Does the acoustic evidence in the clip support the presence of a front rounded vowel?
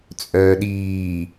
yes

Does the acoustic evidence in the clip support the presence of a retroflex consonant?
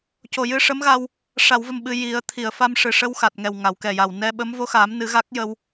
yes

